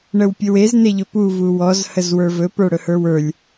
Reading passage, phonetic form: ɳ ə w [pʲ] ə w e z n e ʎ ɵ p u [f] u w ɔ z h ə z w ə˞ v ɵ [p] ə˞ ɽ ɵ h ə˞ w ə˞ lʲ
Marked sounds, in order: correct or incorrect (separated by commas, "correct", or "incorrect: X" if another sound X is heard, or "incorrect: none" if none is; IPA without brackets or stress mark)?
correct, incorrect: v, correct